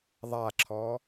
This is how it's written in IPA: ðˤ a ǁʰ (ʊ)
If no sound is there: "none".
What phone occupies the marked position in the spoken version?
ɔ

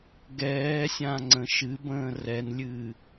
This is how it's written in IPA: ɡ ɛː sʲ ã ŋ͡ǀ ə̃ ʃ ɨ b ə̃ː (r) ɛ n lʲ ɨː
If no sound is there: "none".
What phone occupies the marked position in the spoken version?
r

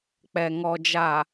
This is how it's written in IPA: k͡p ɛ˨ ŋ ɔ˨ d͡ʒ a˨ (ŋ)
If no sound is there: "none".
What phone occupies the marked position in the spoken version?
none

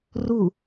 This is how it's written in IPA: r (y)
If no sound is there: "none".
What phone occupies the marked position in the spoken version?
u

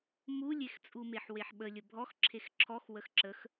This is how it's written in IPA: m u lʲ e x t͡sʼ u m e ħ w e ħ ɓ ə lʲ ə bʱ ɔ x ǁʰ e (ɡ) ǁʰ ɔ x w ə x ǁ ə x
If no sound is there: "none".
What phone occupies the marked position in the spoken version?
x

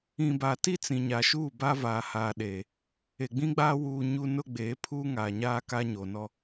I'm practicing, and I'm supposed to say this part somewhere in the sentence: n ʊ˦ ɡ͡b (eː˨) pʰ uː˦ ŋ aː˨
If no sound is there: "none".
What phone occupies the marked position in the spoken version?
eː˨˦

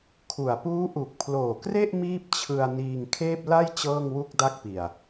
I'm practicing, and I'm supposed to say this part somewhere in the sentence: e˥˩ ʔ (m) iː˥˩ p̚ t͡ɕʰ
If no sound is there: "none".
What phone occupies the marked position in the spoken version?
m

